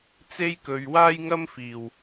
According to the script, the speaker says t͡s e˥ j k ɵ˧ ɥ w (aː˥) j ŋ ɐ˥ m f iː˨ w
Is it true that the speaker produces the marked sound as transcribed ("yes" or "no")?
yes